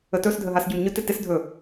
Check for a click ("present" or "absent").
absent